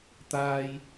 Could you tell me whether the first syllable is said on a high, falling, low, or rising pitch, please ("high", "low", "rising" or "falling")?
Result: low